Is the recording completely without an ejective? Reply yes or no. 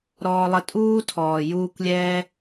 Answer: no